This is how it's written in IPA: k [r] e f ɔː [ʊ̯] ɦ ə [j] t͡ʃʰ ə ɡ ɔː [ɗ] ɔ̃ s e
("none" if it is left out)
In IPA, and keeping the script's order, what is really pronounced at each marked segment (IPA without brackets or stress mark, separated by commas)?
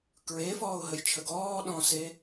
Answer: ɹ, ʊ̯, j, ɗ